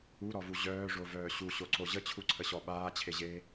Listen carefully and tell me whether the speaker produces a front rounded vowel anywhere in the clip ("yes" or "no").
yes